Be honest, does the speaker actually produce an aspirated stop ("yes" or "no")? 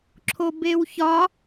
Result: yes